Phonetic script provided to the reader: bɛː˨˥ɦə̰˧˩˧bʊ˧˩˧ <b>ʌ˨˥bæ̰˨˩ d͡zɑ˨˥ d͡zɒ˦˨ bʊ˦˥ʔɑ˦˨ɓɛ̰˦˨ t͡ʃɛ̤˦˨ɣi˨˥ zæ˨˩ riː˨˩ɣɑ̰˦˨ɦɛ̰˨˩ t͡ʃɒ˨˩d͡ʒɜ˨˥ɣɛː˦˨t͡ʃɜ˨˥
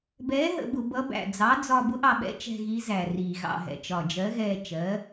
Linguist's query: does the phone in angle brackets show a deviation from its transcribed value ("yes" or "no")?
no